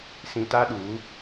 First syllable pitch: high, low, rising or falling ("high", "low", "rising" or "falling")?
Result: low